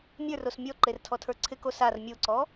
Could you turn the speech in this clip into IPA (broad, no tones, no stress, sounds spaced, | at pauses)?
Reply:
mʲ ə˞ r o s mʲ ɔ ǃ e r tʰ ɔ tʰ ə˞ ǀʰ ɪ k o s a r mʲ o ǀ ɔ